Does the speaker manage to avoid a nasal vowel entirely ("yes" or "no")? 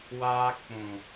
no